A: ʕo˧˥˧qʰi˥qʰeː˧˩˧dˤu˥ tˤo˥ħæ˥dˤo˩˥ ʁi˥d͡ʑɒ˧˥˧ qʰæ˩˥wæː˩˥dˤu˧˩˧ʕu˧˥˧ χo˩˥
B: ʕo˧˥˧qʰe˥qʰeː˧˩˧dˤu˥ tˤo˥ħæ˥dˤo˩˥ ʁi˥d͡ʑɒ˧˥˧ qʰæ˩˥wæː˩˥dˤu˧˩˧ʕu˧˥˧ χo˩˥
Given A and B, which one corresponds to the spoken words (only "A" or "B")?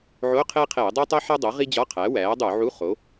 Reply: B